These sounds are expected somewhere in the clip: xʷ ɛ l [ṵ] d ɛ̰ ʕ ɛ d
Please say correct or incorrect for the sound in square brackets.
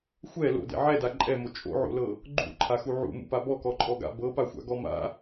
incorrect